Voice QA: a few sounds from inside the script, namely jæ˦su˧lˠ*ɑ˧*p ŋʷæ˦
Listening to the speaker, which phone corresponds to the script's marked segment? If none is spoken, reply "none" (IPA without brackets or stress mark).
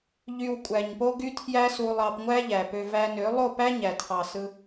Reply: ɑ˧